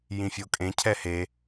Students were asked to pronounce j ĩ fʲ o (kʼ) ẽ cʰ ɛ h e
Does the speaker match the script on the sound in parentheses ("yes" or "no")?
yes